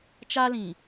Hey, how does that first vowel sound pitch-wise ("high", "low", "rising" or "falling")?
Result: high